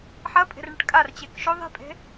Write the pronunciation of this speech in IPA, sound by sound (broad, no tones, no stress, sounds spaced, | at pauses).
ħ ɐ pʼ e̤ r ɳ ɪ ʈ kʼ a r t͡ɕ e k ʃ o ðˤ e̤ pʼ e̤